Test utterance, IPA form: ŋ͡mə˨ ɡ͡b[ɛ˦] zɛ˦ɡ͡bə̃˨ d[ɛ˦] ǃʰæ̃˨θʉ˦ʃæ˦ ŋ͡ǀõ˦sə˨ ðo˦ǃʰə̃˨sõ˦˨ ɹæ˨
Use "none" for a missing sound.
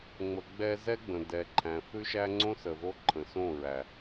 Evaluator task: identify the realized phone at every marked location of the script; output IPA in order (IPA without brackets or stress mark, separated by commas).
ɛ˦, ɛ˨